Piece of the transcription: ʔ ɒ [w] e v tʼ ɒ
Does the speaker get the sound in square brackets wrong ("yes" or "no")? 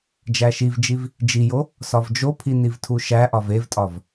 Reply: yes